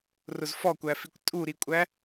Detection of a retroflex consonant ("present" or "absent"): absent